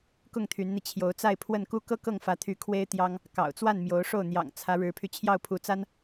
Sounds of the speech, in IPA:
k ʊ˥˩ ŋ t̪ʰ y˧˥ n n̪ i˧ t͡ɕʰ j o˧˥ ʊ̯ t͡s a˥˧ ɪ̯ pʰ w ə˥˩ n k u˥ k ɤ˥ k ɤ˥˩ ŋ f ä˧˥ t̪ʰ y˧˥ kʰ w e˥ ɪ̯ t̪ j ɑ˥ ŋ | k ɑ̰˨˩ ʊ̯ t͡s w a˥˩ n m j o˧˥ ʊ̯ ʂ o˥˩ ʊ̯ n̪ j ɑ̰˨˩ ŋ t͡sʰ ä˧˥ ɻ ɻ̩˧˥ pʰ y˧ t͡ɕʰ j ɑ˥˩ ʊ̯ pʰ u˧˥ t͡s a˥ n

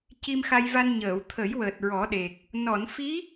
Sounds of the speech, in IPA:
c i˧ m x a˧ j v a˧ n ɲ əː˨˩˨ w t̪ʰ ə˨˩˦ j w əː˨˩ t̚ ɹ ɔ˨˩˦ ɗ e˨˩ k̚ | n ɔ˨˩˨ n f i˧˥

